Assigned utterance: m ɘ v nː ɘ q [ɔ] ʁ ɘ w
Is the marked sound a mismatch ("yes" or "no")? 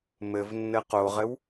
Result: yes